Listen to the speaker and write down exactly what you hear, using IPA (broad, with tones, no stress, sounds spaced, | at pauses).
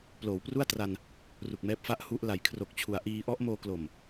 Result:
p l oː˩˦ w p r u˥˩ a̯ t r a˧ n | r u˨˩ k̚ m ɛː˦˥ p̚ f a˥˩ ʔ h u˦˥ ʔ l a˩˦ j kʰ r o˨˩ k̚ t͡ɕʰ u˩˦ a̯ ʔ iː˧ ʔ ɔ˦˥ ʔ m oː˧ k l o˨˩ m